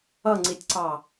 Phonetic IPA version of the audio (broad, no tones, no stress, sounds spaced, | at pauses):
ʌ ŋ͡ǀ i tʲ ǀ ɑ